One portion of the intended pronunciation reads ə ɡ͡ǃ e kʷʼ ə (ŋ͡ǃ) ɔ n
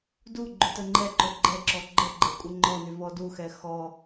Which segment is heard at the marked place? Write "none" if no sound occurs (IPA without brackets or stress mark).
ŋ͡ǃ